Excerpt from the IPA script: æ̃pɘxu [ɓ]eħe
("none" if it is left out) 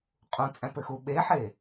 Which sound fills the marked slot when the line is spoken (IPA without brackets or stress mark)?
ɓ